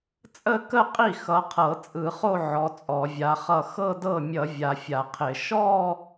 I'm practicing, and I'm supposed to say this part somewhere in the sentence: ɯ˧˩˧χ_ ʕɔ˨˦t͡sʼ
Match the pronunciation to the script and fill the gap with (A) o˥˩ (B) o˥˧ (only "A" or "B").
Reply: B